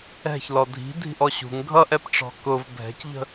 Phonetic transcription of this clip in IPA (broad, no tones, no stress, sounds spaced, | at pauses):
ɛ̤ ç l ɔ dʱ i̤ dʱ i̤ ʔ ɔ ɕ ṳ ŋ ɡʱ ʌ ʔ ɛ p ʈ͡ʂ ɔ̤ k ʊ v bʱ ɛ̤ c ʎ ə̤